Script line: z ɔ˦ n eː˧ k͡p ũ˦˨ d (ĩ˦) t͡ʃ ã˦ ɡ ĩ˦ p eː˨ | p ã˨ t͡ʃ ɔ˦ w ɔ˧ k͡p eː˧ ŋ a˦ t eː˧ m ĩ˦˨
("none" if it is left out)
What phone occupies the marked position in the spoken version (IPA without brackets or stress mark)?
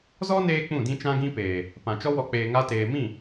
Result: ĩ˦